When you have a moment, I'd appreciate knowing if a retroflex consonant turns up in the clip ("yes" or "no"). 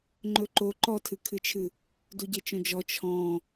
no